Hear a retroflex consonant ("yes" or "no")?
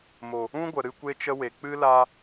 no